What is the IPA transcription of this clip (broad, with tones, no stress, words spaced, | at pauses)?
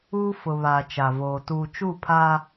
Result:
uː˦ fʊ˨βaː˨ t͡ʃa˨voː˨ tuː˨t͡ʃu˦˨ pʰaː˦